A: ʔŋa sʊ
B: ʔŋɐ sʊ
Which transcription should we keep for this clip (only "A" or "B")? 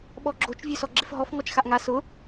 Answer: A